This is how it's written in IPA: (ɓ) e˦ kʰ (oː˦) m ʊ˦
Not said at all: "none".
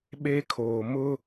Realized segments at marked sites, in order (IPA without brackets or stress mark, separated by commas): ɓ, oː˨